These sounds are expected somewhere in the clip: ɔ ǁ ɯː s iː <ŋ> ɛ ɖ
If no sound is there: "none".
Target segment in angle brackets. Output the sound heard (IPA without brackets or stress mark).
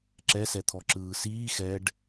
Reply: x